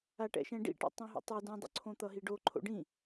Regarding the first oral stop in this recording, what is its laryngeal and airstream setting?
plain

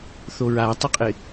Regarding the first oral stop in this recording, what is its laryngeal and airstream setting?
plain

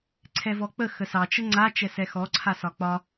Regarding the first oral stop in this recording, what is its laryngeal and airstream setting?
click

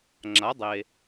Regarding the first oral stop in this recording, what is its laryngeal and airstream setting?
click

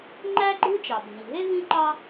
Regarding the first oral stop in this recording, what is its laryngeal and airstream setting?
click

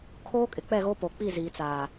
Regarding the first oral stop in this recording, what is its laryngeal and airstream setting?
aspirated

